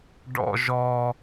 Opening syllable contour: high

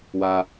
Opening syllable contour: low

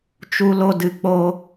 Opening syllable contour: low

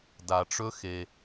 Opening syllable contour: low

